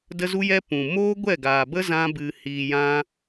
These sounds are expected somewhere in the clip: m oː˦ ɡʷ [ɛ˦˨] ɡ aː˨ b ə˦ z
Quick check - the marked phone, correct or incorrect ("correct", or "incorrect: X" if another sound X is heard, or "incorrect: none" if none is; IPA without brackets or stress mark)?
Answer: correct